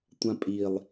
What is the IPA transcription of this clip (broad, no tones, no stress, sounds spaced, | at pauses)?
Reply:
tʷ ã pʼ i lˠ